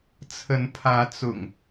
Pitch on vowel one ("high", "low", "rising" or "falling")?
rising